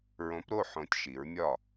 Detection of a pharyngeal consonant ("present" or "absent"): present